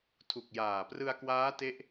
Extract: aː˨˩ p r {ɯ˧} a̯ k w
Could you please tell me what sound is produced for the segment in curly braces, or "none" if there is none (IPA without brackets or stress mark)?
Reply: ɯ˧